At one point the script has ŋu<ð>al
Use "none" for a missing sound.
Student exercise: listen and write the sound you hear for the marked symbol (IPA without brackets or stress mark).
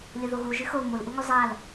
zˤ